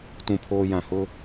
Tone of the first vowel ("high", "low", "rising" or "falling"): low